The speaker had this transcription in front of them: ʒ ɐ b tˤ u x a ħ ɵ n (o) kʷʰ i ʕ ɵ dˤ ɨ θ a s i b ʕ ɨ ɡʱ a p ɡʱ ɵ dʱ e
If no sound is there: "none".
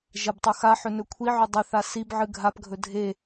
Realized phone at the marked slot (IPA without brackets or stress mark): ɵ